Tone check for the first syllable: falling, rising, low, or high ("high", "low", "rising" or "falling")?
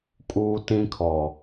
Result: high